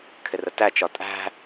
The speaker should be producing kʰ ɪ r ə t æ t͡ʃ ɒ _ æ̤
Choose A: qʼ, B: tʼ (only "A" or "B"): B